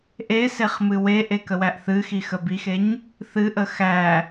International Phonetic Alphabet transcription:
ʔ e s e χ m ɨ w e ʔ e k ə w æ ʔ θ ɨ x i x ə b i x e ɲ | θ ɨ ʔ ə x æ

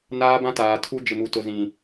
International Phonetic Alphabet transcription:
n aː˦ b ã˦ t aː˨ tʰ u˦ d͡ʒ ɪ˨ m u˨ t ʊ˨ z ĩ˨

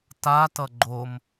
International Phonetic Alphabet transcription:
t a t ʌ ɡ͡ǃ o m

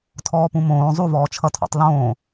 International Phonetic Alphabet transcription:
tʰ ɔː p ũ m õː zˤ u v ɔː t͡ʃʰ ʌ tʰ ɔ̰ tˤ l õː

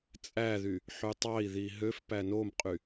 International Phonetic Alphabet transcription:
t͡sʼ æ ð y | ħ y tˤ ɑ i̯ ð i ɦ ø f p æ n o m qʼ y

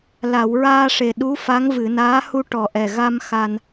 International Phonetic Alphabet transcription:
l a˨˩˨ w ɹ aː˧ ʂ e˨˩ ɗ u˧˥ f a˧˥ ŋ v ɨ˨˩˨ n aː˧˥ h u˧ ʈ ɔ˨˩ ʔ ɛ˨˩ ɣ a˧ m x a˧ n

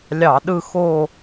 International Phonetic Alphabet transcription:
lʲ ɑ˧˩˧ ɗ ɯ˦˨ x o˦˨

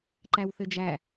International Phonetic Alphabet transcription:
ǃ æ w θ ɘ d͡ʒ æ

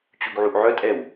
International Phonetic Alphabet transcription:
t͡ɕ u ɡ ʕ u ʔ ʕ œ tʼ ɛ w

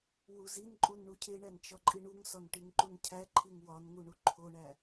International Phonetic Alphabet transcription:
w u z i n ǃʼ u n ɳ u cʰ e ɳ æ n t͡ʃ ɒ ǃʼ i ɳ u ŋ s ɒ n ʈ i ŋ ǃ u n cʰ æ ǃʰ i ŋ w ɒ n ŋ u ɳ u ǃʰ o ɳ æ

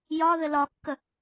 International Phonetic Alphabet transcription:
j ɒ ð ɘ l ɒ kː ə

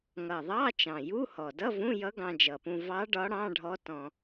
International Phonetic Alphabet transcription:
ŋ ʌ˨˩ ðˤ ɑ˧˥˧ t͡ʃ ɑ̃˨˩ j u˧˥˧ h ɔ˨˩ d ʌ˧˥˧ v ũ˧˥˧ j ʌ˧˥ ɡ ɑ̃˧ d͡ʒ ʌ˨˩ p ũ˧ v ɑ˧˥ ɖ ɒ˧˥ ɽ ɑ̃˧˥˧ ɖʱ ɔ˧˥ t ɔ̃˧

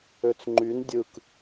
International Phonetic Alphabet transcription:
ø t͡s ŋ͡ǃ y n dʲ ɯ k

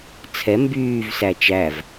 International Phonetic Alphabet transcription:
t͡sʰ ɛ m b yː v s æ t͡ʃ æ v

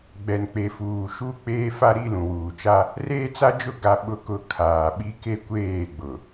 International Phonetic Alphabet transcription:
ɡ͡b ɛ˨ n k͡p e˨ f uː˨ ʃ u˦ k͡p eː˦ f a˦ ɾ i˦ l ũ˨ w uː˨ t͡ʃ a˦ | r eː˦ t͡s a˦ d͡ʒ ʊ˦˨ ɡ a˦ ɓ ʊ˦ k ʊ˦˨ kʰ aː˨ ɓ i˦ k e˦ kʷ eː˦˨ ɡ͡b ʊ˨

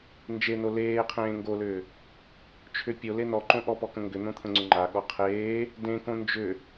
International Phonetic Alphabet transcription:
n d͡ʒ e n o l eː qʰ ẽː ŋ ɡ o l ʏː | t͡ʃʰ ʏ pʲ o l e n ɔ ǃ õ ʔ ɔ p ɔ k ə̃ ŋ ɡ ʏ n̪ õ t̪ʰ ə̃ ŋ͡ǀ ʏ ŋ͡ǃ a ɠ ɔ qʰ eː | d ẽ k õ n d͡ʒ ʏ

